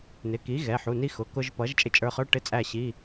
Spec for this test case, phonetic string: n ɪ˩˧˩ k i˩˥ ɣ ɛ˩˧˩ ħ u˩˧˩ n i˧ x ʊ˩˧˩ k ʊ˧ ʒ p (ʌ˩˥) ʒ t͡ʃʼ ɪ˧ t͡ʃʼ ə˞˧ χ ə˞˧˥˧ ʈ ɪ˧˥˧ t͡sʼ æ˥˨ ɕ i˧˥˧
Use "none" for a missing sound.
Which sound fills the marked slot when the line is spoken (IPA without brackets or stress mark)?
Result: ʌ˩˥